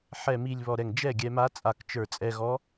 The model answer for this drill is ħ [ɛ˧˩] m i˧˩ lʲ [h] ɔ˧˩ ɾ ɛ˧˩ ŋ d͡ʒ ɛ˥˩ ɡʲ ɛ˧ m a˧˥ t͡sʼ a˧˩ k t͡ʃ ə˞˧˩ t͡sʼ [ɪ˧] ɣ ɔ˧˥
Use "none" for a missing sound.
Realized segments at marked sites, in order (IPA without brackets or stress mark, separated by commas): ɛ˧˩, β, ɛ˧